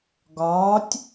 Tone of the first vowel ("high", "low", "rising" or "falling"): rising